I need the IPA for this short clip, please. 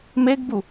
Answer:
meɡbu

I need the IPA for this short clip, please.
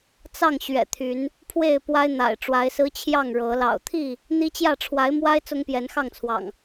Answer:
t͡sɑ˥˨ŋɕɥɛ̰˨˩t̪ʰy˨˦n | pʰwe˥˨ɪ̯pwa˦ɪ̯n̪a̰˨˩ɪ̯ ʈ͡ʂwa˨˦ɪ̯sɹ̩˦t͡ɕʰjɑ˥˨ŋ ɻɤ˨˦ lɑ̰˨˩ʊ̯t̪ʰi˥˨ | n̪i˦t͡ɕjä˥˨ ʈ͡ʂʰwa˨˦ɪ̯mwa˦ɪ̯ t͡sʊ˦ŋpjɛ˨˦nxɑ˥˨ŋt͡sʰwɑ̰˨˩ŋ

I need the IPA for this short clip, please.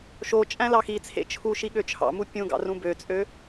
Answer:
ʃo t͡ʃʼæ̃lɑxit͡sʰḛ t͡ʃʰuʃi ɠøt͡ʃʰɑ̰mu pʲũɡɑ̰ rũbøt͡sʼø

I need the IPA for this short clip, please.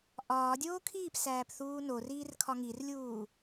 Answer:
ʔɒː dʲoːkʰiːpsæːp θuːnoriːr kʰɒŋirlʲuː

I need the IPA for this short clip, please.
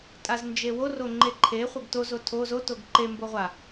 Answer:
tʼaznd͡ʒewo roŋ͡ǃeǃʰe χʷeɡto zotʰo zo toɡǃe mboʁʷa

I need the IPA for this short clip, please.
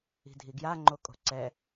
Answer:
i̤dʱiɡja ŋ͡ǃokʼo̤ǀɛ

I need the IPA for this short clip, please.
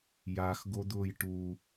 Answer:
jaxɡod̪ʊːj ʈu

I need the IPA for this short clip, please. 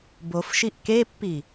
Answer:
bofʃiʔ kepːi

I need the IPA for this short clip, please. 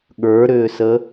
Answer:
ɠə˞ɾʏːsə

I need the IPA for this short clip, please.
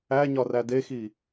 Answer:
æɲɒræ dexi

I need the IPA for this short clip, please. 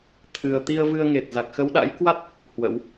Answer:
t̪ʰɨ˨˩ə̯ t̪i˧ə̯vɨ˧ə̯ŋe˨˩t̚ za˨˩k̚xə˨˦wɗa̰˧˥jkwa˦˥t̚ | hwə̰˧˥w

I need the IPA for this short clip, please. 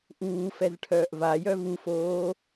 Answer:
ʔuːfɛz ʈʰœːʔvajœ vufoː

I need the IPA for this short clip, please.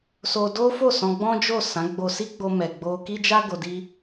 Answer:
so˧do˦fo˦˨ sɔ̃˧ɡ͡bɔ̃˦d͡ʒo˦˨ sã˨˦ɡ͡bo˧si˦ɡ͡bo˧ mɛ˨ɡ͡bo˧ki˦d͡ʒa˦ ɡo˧di˦

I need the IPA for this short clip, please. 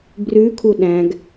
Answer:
brʉkʰu ɗæ̃ɡ

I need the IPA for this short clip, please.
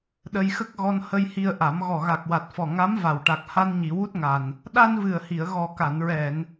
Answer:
ɗə˧jxə˦˥k̚ɣɔ˧n hə˧jhi˧ə̯ʔa˨˩˦m ɣɔ˨˩ɣa˨˩k̚wa˨˩t̚fɔ˨˩ ŋa˧˥m va˨˩wʈa˨˩k̚ ha˧nɲi˨˩˨wu˦˥t̚ŋa˨˩n | ɗa˧nvɨ˨˩ə̯hi˨˩˨ə̯ ɣɔ˨˩ka˨˩˨nɹɛ˨˩˨n

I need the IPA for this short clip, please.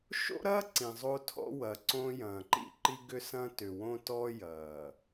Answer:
ʃo̰˦ɾɐː˦ ǀĩ˨zˤo˦tʰɔ̰˦wɐ˨ ǀõ˦jɐ̃ː˨ ǃḭ˦ǃi˦ɡʏ˦ sɐ̃ː˦tʏ˨wõ˦ tɔ˦ jɐː˨

